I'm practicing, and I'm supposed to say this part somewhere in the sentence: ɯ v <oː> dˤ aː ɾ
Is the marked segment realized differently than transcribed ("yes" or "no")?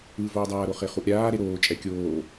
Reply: no